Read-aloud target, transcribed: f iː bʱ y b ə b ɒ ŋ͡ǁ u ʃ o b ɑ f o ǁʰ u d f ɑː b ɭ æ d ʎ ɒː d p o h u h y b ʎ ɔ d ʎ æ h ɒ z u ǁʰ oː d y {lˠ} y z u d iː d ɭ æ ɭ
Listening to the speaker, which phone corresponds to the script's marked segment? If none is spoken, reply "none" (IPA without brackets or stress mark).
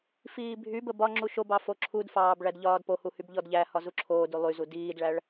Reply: lˠ